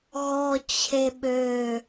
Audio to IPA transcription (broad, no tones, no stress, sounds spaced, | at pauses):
ɣ ɔ t͡ɕʰ e ɓ ø